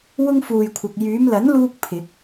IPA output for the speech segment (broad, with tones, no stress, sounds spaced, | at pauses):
w ʊ˥ ŋ f uː˨ j kʷʰ ɐ˨ k̚ j yː˨˧ m l ɐ˨˥ n l uː˧ k̚ pʰ ɪ˨˥ k̚